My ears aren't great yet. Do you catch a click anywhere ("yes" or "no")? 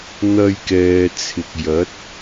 no